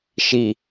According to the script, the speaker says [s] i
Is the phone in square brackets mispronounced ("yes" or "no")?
yes